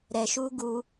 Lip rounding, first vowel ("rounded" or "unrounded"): unrounded